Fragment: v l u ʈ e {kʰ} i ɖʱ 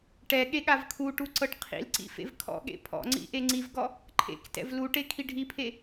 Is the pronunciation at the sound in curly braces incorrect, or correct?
correct